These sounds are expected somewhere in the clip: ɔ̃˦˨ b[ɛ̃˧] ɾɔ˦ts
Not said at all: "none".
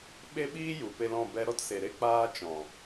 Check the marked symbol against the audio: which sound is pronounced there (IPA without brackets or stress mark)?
ɛ˧